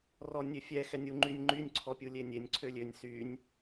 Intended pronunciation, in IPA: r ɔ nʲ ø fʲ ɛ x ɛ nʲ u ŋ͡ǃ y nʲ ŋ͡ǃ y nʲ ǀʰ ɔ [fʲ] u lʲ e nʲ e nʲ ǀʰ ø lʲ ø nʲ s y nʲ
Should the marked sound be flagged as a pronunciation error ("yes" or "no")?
yes